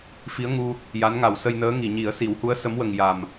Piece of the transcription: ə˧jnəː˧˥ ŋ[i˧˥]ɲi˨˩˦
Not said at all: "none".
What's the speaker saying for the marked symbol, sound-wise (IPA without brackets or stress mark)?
i˨˩˨